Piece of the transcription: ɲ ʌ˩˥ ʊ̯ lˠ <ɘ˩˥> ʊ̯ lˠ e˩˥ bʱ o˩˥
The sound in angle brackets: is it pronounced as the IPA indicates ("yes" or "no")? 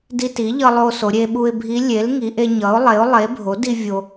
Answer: no